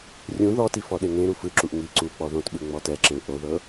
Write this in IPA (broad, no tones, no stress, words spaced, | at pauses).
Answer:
rʲũ ðɔti fɔɗeŋẽɾu fɯǁuʔ ŋi ǀu k͡pɔðõtɓɯ ŋ͡mɔtɛǁẽɭ ʔoðɤ